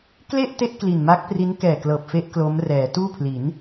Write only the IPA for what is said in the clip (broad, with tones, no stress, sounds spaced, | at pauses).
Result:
k l e˥˩ ʔ t e˦˥ ʔ k l i˨˩ n m a˦˥ k̚ p r i˦˥ n k ɛː˨˩ k l ɤː˨˩ p̚ f e˦˥ ʔ k l o˦˥ m r ɛː˩˦ t uː˥˩ pʰ l i˩˦ n